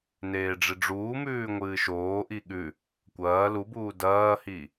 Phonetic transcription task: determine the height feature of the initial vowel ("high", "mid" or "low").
mid